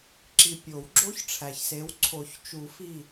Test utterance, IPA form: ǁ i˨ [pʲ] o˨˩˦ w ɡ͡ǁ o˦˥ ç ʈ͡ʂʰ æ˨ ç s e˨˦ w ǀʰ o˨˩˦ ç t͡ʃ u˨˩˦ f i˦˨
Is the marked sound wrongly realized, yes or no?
no